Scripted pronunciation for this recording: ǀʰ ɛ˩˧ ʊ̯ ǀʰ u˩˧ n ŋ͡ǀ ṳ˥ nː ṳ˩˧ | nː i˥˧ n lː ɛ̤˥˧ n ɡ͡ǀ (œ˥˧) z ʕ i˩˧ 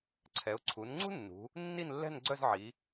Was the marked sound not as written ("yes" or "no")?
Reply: no